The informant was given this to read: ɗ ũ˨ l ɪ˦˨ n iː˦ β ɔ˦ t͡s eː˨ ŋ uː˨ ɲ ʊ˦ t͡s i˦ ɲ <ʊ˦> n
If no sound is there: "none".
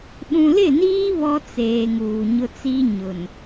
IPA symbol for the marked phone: ʊ˨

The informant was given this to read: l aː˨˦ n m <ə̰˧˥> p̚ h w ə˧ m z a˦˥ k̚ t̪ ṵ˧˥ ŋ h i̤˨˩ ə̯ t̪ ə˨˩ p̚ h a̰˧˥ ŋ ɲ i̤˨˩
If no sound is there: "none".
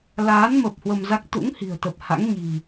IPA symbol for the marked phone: ə˨˩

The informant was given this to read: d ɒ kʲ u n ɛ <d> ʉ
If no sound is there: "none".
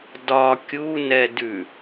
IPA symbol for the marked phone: d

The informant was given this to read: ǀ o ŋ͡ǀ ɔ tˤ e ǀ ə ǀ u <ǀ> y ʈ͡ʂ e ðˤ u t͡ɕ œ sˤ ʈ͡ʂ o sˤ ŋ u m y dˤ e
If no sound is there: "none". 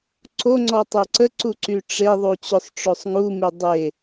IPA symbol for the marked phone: ǀ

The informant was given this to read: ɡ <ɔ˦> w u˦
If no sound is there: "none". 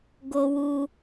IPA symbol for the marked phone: o˦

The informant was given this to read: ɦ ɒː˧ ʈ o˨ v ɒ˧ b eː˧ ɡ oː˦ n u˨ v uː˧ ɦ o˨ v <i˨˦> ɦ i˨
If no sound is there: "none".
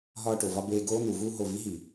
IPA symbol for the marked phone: i˨˦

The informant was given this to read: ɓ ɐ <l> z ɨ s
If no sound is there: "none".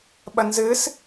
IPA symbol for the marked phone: n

